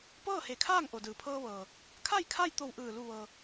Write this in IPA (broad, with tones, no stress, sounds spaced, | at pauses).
p ɤː˥˨ h e˧˩ kʰ aː˥˨ ŋ ʔ o˩ d ɯː˩ pʰ ɤː˧ ʋ ɤː˩ | kʰ a˥˨ j kʰ a˥˨ j t̪ o˧˩ w ʔ ɯː˧˩ l u˧˩ ʋ ɤː˩